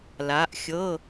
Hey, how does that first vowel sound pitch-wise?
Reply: rising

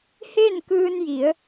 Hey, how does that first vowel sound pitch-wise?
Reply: falling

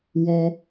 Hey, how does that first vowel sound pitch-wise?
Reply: high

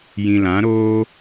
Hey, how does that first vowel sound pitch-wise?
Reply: low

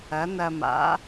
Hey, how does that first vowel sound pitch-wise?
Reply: rising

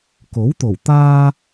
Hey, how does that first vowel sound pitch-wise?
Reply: rising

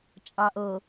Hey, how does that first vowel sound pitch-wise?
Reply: low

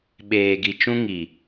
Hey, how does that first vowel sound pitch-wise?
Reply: low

